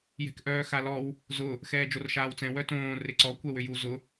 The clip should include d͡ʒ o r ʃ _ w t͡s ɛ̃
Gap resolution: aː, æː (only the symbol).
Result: aː